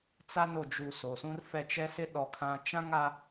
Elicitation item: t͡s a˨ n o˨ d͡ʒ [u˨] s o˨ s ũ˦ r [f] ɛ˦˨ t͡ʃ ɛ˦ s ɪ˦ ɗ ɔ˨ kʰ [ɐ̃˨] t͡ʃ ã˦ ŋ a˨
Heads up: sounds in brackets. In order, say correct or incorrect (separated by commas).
correct, correct, incorrect